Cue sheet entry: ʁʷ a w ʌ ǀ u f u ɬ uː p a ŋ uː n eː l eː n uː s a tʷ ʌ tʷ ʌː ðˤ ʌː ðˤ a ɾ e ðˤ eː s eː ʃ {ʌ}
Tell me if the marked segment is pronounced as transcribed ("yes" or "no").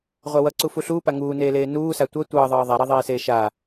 no